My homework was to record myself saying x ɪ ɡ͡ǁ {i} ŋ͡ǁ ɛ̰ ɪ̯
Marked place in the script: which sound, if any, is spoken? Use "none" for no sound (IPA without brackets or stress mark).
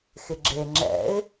e